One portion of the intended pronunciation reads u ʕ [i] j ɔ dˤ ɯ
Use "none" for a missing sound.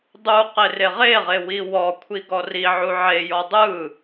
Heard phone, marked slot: e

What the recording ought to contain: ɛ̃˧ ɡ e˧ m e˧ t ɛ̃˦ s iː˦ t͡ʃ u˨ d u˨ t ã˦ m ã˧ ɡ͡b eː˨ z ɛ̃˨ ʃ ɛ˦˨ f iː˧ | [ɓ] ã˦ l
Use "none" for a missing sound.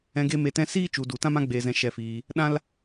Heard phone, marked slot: ɗ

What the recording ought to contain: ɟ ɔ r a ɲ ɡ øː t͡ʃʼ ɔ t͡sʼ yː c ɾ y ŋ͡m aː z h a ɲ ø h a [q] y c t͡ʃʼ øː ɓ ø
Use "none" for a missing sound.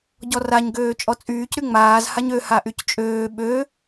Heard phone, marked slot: ʔ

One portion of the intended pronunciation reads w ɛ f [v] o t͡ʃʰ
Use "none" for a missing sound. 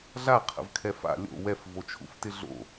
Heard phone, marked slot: v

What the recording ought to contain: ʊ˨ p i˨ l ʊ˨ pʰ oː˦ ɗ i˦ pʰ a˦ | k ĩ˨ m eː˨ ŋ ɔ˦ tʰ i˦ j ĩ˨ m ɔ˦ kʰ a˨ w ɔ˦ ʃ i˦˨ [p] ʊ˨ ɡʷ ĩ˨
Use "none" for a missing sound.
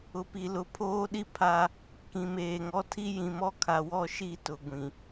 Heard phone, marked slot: t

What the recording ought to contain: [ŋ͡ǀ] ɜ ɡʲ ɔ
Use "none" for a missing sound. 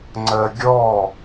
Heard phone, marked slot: ŋ͡ǀ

